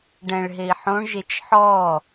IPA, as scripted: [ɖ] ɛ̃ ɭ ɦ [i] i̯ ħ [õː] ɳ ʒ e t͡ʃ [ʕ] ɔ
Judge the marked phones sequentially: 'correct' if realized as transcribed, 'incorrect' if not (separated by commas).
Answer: correct, incorrect, incorrect, incorrect